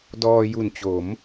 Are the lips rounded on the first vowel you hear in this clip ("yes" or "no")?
yes